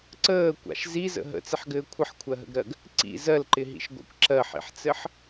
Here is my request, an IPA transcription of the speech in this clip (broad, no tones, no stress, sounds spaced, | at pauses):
ǀ əː kʷ a̰ ʃ z i z ə̰ ɦ ə̰ t͡s ɪ ħ ɡ ɘː kʷʰ ə ħ kʷʰ ɜ ɦ ə̰ ɡ ɾ ɜ ɡ | ǀ ḭ z ɜ l ǃ ɪ ɦ ḭ ʃ ɡʷ a̰ kʷ ǁ ɜ ħ ḭ ħ t͡s ɘ ħ